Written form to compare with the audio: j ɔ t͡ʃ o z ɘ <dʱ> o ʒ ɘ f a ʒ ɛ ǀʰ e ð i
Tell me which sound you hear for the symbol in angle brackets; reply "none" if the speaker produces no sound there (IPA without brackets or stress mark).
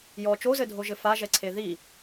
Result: dʱ